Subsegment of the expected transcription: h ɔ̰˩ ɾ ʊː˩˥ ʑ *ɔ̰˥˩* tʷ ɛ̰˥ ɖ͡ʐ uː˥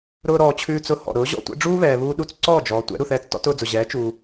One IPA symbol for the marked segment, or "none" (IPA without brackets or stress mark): ɔ̰˥˩